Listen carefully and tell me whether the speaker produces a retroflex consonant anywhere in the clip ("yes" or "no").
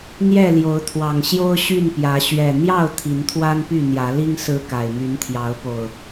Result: no